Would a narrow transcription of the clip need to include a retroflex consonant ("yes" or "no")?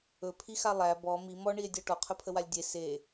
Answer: yes